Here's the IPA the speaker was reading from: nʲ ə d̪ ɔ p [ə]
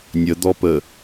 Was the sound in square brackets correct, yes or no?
yes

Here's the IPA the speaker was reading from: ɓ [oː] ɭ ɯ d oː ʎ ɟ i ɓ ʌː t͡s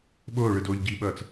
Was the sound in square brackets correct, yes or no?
yes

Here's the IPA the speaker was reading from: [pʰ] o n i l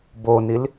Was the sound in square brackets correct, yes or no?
no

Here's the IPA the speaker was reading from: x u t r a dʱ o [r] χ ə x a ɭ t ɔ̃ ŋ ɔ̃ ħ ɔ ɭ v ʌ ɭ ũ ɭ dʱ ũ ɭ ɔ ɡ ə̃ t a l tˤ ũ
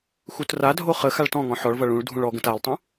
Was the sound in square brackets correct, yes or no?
no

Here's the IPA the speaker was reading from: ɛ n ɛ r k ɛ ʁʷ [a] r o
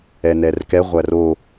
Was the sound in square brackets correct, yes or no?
no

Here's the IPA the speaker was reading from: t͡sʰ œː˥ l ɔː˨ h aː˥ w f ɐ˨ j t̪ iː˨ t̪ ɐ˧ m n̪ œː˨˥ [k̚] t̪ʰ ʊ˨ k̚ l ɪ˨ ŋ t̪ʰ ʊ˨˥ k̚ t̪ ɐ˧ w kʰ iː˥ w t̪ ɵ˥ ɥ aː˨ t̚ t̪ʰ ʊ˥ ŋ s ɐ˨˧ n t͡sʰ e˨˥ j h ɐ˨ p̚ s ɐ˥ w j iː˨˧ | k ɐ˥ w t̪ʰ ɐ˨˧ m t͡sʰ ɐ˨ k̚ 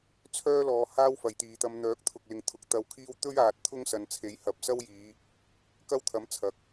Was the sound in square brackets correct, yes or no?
yes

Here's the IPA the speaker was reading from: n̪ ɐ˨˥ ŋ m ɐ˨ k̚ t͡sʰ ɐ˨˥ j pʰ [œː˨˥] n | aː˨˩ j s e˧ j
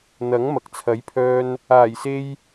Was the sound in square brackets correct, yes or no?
no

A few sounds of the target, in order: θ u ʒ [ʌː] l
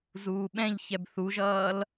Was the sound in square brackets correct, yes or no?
yes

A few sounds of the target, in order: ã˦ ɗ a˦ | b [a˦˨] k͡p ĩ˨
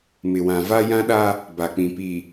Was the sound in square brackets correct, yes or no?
no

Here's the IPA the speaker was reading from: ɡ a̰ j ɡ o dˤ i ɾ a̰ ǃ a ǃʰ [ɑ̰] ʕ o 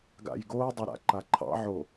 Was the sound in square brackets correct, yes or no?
yes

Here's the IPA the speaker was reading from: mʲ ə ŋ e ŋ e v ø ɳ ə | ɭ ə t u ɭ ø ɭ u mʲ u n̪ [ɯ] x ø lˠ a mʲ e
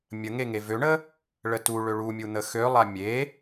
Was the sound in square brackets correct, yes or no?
no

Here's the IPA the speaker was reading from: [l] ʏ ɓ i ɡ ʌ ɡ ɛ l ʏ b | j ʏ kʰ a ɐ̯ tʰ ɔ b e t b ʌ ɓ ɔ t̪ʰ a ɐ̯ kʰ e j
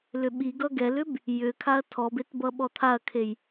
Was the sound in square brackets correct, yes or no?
yes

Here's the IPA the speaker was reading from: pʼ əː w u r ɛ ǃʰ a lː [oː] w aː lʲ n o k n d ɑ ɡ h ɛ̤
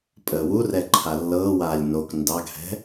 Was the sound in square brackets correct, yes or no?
no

